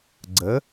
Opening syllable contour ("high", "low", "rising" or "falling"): rising